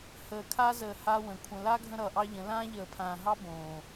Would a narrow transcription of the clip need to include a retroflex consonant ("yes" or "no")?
no